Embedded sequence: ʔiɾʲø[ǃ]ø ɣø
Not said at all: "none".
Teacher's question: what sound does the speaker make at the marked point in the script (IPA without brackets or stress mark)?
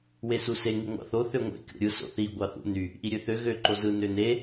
θ